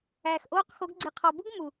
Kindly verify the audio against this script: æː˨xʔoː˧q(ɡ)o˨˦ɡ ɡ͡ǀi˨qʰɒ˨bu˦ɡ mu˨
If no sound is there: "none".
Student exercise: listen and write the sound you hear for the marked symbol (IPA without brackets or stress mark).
x